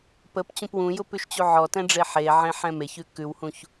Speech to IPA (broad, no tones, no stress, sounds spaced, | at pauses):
p ə p t͡ɕ ũ p w ũ j ʊ p ʉ ʃ t͡ɕ u ʕ ɔ t ɛ̃ ɖ͡ʐ e ħ e ʕ ẽ ħ ɛ̃ m e ç ʉ k ʉ w h ũ ç